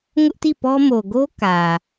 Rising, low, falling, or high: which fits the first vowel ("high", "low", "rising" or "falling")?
high